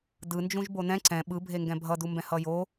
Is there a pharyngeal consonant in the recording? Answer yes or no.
no